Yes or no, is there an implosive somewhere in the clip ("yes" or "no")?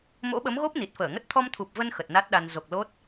yes